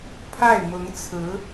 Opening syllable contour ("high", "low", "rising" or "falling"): falling